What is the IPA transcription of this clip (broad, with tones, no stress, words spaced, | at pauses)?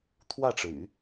t̪ʰwä˥˩ʈ͡ʂɻ̩˩y̰˨˩˦